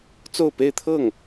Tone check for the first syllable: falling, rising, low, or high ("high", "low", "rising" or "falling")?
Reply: falling